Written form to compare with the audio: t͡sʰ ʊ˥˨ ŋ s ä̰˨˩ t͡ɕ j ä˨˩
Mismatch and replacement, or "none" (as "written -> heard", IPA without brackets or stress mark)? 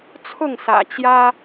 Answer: ä˨˩ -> ä˦